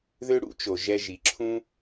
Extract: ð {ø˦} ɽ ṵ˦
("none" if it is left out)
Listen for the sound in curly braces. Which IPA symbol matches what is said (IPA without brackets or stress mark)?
ø˦